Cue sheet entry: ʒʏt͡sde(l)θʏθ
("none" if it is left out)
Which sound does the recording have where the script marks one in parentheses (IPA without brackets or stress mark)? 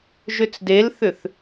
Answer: l